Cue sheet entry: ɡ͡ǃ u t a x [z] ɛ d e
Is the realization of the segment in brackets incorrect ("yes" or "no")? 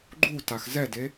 no